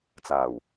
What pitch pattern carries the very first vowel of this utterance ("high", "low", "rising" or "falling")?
low